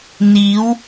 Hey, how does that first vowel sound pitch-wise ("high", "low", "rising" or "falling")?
rising